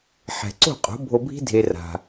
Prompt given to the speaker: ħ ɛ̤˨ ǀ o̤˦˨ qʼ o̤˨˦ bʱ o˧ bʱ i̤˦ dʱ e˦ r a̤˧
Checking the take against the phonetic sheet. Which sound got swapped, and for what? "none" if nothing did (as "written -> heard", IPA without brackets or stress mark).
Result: none